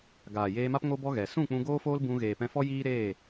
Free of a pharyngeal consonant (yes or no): yes